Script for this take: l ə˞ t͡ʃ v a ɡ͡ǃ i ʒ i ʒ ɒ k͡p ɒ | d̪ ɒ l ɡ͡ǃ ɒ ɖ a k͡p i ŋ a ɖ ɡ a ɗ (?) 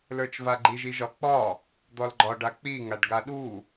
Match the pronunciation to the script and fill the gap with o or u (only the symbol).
u